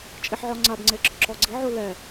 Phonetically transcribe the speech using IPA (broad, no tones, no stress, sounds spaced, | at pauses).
t͡ʃʼ i ħ ʕ ɔ ŋ͡ǀ a b ŋ͡ǀ e ɡ͡ǁ ɔ ǁ ɔ ɡ͡ǀ i ʕ u l ɛ